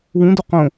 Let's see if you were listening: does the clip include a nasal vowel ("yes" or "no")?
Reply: yes